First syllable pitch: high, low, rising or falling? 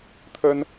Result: high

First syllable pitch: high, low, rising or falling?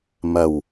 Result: low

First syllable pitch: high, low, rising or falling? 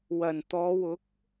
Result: low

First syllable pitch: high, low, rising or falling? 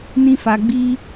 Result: high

